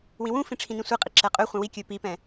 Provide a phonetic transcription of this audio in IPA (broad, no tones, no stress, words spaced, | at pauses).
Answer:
wĩwũfĩ ʈ͡ʂʰĩnĩsʷiqʼi ǁɛqʼøχʷɛ̃ wikʲɵ pipɛ̃